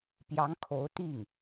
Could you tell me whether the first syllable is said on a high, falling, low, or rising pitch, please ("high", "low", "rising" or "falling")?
rising